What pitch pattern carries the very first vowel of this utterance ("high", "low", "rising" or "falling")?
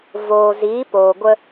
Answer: low